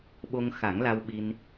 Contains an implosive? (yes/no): yes